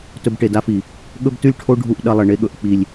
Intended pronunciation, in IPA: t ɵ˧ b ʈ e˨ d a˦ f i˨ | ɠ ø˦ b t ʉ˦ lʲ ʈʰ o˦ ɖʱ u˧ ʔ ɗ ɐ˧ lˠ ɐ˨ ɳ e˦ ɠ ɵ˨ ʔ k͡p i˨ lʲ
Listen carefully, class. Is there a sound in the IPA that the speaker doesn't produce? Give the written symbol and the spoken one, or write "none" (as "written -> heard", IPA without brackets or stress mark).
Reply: ø˦ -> ɵ˦